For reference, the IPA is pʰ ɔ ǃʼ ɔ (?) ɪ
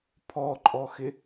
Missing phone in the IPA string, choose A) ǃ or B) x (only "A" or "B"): B